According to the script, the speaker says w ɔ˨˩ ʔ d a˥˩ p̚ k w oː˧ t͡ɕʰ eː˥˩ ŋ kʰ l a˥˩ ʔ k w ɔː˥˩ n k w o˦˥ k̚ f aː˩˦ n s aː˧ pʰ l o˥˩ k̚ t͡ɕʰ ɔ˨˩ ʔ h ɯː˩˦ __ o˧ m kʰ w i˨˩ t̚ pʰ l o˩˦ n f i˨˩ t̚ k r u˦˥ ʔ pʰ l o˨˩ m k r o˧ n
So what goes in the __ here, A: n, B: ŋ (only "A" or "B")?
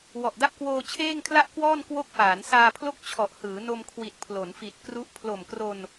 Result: A